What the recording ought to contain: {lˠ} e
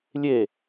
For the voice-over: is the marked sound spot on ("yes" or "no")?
no